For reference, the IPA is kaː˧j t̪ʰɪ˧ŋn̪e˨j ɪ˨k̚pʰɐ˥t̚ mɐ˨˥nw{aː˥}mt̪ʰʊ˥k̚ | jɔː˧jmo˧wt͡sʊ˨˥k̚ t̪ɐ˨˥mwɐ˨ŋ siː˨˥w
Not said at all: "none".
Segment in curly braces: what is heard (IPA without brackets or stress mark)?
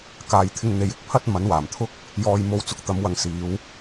aː˨˩